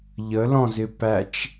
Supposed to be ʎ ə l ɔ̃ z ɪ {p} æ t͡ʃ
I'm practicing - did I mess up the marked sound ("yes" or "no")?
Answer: no